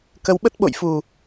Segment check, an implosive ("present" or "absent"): present